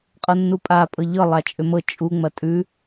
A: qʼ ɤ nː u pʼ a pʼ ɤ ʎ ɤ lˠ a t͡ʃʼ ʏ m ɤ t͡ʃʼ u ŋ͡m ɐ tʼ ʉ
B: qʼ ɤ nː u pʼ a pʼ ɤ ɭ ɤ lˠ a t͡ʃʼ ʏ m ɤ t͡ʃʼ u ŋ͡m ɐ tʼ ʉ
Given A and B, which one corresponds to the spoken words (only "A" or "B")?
A